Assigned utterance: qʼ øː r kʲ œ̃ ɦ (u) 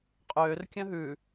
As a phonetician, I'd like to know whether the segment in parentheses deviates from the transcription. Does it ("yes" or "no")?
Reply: yes